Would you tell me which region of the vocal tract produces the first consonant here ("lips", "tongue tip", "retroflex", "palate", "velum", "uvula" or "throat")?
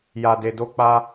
palate